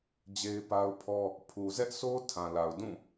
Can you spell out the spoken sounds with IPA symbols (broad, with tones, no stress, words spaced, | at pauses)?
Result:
d͡ʑe˦ɪ̯pa˦ʊ̯pʰɔ˦ | pʰu˨zɛ˦ʔsʰo˦ tʰã˨la˨ʊ̯ dũ˦˨